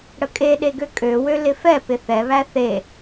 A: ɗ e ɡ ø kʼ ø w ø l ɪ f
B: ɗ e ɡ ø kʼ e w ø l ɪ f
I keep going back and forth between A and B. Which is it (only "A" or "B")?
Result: A